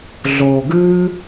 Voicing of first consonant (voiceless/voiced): voiced